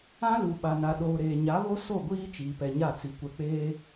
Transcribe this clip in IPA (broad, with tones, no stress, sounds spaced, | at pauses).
ã˦ l u˨ ɓ a˨ n a˨ ɗ oː˨ ɾ eː˨ ɲ a˨˦ β o˦ s o˦˨ ɡʷ iː˦ t͡ʃ iː˨ p ɛ˨ ɲ a˦˨ t͡s i˨ kʷ ɛ˨ k͡p eː˦